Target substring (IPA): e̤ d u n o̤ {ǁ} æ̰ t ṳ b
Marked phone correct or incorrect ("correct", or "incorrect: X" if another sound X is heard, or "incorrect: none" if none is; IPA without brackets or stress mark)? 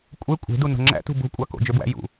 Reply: incorrect: ŋ͡ǁ